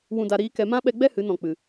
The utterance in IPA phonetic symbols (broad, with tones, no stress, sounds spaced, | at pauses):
w ũ˨ d a˨ ɾ iː˧ k ɛ˨ m ã˦ ɓ ɛ˧ ɡ͡b ɛ˦ h ɨ˨˦ n ɔ̃˨ k͡p ɨ˨